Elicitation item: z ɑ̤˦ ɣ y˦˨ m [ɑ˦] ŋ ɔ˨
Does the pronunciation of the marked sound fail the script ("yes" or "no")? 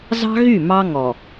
no